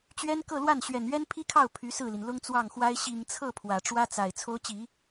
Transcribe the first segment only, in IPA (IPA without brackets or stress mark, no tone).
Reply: t͡ɕ